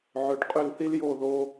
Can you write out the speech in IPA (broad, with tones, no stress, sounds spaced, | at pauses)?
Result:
ʕ ø˨ ɖ qʼ ø˦˨ l θ i˦ l j o˦˨ ð o˧